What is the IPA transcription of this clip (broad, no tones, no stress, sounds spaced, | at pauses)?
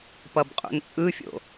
p ʌ b qʼ o̰ n t͡sʼ ɯ fʲ o̰